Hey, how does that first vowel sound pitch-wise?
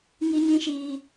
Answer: high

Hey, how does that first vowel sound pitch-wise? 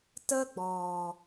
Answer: high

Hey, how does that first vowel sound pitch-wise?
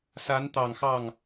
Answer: rising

